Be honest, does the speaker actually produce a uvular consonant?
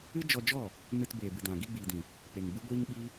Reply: no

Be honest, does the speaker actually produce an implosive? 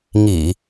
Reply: no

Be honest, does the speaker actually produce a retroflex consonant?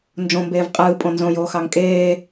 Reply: no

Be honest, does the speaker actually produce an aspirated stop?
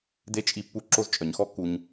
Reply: no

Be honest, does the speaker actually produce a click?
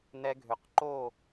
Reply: yes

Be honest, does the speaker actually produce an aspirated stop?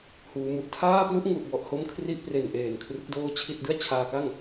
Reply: yes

